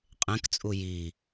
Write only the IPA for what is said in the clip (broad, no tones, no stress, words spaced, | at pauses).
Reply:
qʼẽkt͡sʼu ji